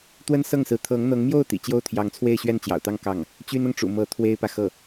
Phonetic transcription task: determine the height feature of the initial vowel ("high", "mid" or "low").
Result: mid